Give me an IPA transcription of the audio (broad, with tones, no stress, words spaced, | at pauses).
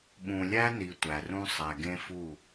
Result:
ɓũ˨lʲæ˦ni˨ tʷæ˨rũ˦ sˤæ˨ɡẽ˦fu˦˨